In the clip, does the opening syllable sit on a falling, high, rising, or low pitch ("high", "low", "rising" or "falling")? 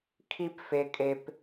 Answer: high